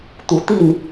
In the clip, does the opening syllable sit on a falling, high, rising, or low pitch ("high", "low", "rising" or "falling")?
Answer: rising